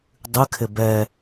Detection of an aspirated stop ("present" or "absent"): present